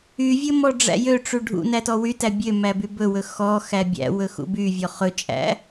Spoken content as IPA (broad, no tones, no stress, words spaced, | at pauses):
yvʲɵ mɔɖ͡ʐæ̰jøʈ͡ʂu ɖʱṵ nætɔwytæ bʲø mæbybɵwɵ xɔ xæbʲæ̰wɵ xṵbyvʲɔ χɵt͡ʃʼæ̰